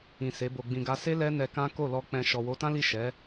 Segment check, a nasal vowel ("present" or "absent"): present